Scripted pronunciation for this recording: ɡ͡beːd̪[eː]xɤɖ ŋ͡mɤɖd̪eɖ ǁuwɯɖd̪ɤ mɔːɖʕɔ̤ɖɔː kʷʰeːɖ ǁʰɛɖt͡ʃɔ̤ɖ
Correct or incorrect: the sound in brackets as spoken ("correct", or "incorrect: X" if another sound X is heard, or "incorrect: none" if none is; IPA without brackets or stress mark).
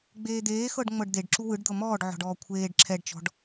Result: correct